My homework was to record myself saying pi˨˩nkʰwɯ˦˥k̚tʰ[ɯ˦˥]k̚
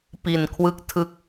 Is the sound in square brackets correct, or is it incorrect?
correct